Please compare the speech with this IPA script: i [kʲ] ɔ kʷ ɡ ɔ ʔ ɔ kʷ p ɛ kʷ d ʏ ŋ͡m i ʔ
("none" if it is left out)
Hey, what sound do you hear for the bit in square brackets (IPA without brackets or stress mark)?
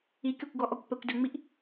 kʲ